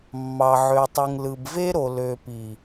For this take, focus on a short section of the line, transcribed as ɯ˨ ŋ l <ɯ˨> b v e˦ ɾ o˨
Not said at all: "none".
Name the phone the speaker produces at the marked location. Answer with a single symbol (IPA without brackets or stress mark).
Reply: ɯ˨